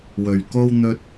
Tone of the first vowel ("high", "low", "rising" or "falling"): low